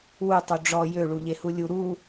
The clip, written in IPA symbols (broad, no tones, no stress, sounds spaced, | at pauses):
w u tˤ u ɖ͡ʐ ɔ j ø ɭ u ʎ e h u lʲ u ɾ u